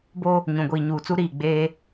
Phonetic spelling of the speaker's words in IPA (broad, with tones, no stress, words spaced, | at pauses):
bo˦ | ɲũ˨ɡʷiː˨ɲuː˨t͡su˦ ɾiː˦˨ɡ͡beː˦